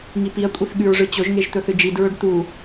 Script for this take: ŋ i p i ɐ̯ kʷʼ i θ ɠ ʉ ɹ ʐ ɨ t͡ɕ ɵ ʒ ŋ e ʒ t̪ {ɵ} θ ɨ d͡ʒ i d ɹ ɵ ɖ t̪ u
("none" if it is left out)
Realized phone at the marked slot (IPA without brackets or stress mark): ɵ